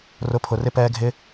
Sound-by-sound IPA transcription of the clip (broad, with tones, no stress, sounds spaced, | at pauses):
r ʊ˨˦ pʰ ʊ˨ r ɪ˧ p ɛː˧ ɡʱ ɪ˦